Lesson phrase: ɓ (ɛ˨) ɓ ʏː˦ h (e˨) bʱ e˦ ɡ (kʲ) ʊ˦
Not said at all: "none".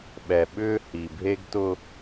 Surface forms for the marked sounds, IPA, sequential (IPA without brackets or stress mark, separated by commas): ɛ˨, i˨, t